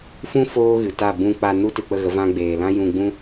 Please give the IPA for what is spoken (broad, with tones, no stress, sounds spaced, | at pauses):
f ũ˦ f oː˦ ɣ ɨ˨ t a˦˨ b ũ˧ k͡p a˧ n u˦ t ɨ˨ k͡p ə˦˨ ɣ ə˨˦ v ã˦ ɡ͡b eː˨ l ã˦ j ũ˧ ɡ͡b ũ˦